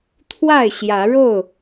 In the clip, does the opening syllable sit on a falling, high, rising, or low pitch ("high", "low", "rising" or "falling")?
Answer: falling